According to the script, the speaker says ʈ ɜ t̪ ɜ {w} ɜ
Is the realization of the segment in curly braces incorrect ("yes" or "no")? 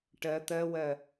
no